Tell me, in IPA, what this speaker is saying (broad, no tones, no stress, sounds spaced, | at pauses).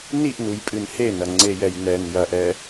n i ʔ n u j pʼ ɨ n h e n ɐ ŋ͡ǀ e j ɛ j n ɛ n j ɐ ʔ ɛ